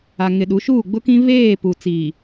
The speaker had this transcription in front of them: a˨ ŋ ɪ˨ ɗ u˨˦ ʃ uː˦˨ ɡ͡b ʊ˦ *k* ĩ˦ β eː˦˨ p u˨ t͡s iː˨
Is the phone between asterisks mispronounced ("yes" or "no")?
no